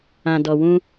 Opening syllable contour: low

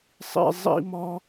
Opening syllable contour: high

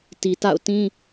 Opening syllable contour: low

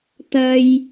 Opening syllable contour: low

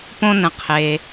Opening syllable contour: high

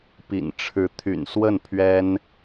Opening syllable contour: low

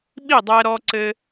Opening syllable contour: falling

